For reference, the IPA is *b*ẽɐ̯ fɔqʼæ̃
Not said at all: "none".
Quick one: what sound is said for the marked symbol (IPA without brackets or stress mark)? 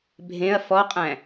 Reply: bʱ